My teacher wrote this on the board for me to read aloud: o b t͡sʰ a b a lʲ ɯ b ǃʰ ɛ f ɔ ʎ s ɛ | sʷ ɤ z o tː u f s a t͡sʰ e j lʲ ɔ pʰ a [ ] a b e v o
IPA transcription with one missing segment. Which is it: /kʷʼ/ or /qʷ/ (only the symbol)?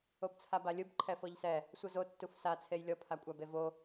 kʷʼ